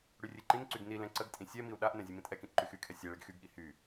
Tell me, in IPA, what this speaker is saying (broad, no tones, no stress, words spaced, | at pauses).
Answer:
ɽyrʲeǃĩnǀyɡ nilɛ̃ ǀəɡtʼĩ sʲɛmiu̯ ɗaʔnɛ̃ zʲemĩtʼɛkĩʔ ǃyxykʰɛ sʲɛɭeɡ xyɡɠi hy